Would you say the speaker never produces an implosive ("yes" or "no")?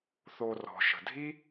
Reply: yes